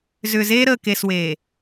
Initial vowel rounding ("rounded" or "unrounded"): rounded